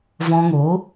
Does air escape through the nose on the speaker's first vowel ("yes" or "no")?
yes